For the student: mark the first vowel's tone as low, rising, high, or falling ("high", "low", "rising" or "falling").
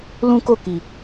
high